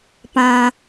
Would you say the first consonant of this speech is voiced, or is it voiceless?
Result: voiceless